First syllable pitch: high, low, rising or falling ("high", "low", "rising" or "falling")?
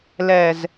low